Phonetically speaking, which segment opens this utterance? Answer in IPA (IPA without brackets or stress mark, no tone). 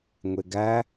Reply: ŋʷ